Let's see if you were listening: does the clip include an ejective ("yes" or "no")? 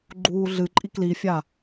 yes